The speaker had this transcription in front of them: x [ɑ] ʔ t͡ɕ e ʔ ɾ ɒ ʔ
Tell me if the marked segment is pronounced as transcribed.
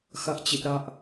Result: no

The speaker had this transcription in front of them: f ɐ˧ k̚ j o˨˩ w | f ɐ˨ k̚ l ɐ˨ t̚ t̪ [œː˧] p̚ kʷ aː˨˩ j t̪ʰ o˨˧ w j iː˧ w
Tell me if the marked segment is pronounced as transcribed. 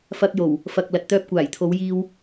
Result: yes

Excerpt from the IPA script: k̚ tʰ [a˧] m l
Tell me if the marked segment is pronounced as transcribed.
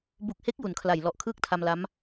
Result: yes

